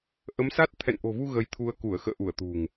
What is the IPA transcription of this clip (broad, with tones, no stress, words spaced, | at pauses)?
ʔə˨˦msa˦˥t̚ t̪ʰɛ̰˧˨nʔo̤˨˩vu˧ ɣə˧jt̪ʰu˧ə̯ ku˧˩ə̯xə̰ː˧˨ʔu˧˩ə̯ t̪ṳ˨˩ŋ